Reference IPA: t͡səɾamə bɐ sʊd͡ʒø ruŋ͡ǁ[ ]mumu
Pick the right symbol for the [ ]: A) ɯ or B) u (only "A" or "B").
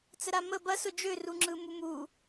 A